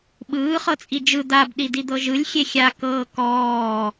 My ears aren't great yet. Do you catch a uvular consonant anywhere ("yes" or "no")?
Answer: yes